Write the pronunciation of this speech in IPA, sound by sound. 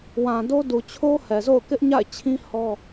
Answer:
w ã˨ d o˦ d u˨ t͡ɕʰ o˦ h ɛ˨ z o̰˦˨ ʊ̯ k ɪ˦ ʔ ɲ a̰˦˨ ɪ̯ t͡ɕʰ ĩ˦ h ɔ˦

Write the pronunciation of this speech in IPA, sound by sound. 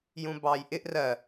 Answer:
j ũ b ɑː j ʔ ɪ ʔ r ɜ

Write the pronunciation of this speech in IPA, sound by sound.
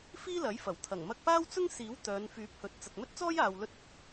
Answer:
f iː˥ l ɐ˨˥ j f ɐ˨˩ w t̪ʰ ɐ˨˩ ŋ m ɐ˧ k̚ p aː˥ w t͡s ʊ˥ ŋ s iː˨˥ w t̪ œː˨˧ n f yː˨˥ p̚ h ɵ˨˥ t̚ t͡s ɐ˨ k̚ m ɵ˥ t̚ t͡s ɔː˥ j aː˨ w l ɵ˧ t̚ ɵ˨˥ t̚

